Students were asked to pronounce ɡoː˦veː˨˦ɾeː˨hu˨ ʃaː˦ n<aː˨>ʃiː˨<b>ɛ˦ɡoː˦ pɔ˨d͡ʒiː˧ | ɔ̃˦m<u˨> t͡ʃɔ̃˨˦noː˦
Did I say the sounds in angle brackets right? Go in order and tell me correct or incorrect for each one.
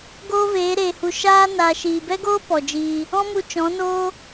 correct, correct, incorrect: u˧

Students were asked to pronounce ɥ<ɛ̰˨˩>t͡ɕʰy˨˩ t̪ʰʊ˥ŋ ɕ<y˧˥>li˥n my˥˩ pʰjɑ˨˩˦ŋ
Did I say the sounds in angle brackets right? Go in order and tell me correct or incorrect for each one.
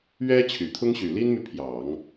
incorrect: ɛ˥, incorrect: y˨˩

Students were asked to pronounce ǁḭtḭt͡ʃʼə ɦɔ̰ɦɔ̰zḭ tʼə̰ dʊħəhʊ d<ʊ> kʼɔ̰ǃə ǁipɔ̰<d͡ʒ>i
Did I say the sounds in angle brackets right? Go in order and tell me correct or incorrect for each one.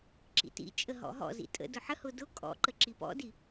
correct, incorrect: d

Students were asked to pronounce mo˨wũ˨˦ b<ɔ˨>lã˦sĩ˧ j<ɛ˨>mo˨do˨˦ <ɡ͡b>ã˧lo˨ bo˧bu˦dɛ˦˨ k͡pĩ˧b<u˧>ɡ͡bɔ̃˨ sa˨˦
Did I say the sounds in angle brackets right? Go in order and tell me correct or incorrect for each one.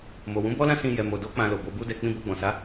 incorrect: ɔ˦, correct, incorrect: k͡p, incorrect: o˧

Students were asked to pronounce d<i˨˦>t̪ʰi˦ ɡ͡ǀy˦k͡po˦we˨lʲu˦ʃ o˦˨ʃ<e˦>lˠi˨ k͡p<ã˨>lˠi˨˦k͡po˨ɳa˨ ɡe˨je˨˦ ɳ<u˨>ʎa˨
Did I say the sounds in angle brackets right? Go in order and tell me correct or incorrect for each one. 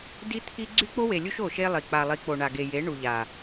incorrect: i˦, correct, incorrect: a˨, correct

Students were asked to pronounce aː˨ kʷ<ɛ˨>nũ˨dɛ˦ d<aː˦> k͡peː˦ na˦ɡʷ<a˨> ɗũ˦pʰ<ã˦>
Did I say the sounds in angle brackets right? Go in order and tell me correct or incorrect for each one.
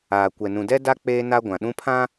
correct, incorrect: a˦, incorrect: ã˨, correct

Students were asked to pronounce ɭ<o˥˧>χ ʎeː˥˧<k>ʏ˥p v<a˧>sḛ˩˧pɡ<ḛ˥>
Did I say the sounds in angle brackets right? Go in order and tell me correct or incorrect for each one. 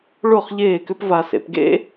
correct, correct, correct, correct

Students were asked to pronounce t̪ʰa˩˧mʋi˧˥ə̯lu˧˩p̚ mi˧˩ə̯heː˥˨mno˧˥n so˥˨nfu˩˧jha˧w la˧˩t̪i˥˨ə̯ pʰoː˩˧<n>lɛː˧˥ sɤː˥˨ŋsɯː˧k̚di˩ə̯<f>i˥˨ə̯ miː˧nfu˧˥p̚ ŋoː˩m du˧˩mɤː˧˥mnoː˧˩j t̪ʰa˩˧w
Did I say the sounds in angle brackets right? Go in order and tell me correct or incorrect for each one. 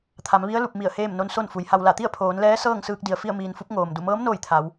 correct, correct

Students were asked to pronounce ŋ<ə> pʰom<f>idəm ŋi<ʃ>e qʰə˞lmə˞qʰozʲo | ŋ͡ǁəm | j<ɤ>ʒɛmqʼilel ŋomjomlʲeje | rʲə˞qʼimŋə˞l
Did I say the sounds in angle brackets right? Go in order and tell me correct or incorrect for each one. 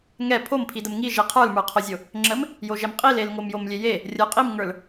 incorrect: ɛ, incorrect: pʰ, incorrect: ʒ, incorrect: o

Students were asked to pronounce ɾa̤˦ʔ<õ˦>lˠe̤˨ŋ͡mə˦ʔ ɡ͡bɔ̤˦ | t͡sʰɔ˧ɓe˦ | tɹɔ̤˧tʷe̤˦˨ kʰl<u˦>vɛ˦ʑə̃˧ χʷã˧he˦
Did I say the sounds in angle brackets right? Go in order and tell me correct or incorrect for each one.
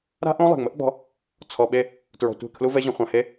correct, correct

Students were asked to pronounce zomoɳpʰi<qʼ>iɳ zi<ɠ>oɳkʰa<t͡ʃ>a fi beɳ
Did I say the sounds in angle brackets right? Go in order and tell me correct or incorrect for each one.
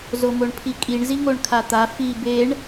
incorrect: kʼ, incorrect: ŋ, incorrect: t̪

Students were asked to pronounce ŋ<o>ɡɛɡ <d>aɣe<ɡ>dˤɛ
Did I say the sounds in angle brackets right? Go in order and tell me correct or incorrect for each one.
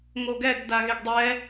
correct, correct, correct

